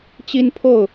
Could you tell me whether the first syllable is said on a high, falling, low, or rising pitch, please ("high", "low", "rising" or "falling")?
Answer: high